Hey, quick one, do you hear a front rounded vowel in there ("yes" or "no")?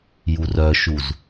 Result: yes